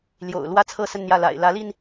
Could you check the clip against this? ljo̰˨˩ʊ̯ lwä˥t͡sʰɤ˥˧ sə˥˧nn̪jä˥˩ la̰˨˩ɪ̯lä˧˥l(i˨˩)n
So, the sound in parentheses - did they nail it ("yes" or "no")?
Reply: no